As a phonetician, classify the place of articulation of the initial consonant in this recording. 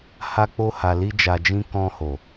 glottal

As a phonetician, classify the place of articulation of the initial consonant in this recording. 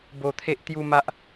labial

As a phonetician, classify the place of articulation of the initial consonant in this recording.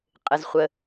uvular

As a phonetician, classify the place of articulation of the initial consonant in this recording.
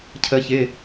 palatal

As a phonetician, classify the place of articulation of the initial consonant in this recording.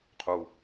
uvular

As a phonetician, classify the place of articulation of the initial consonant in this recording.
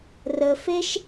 alveolar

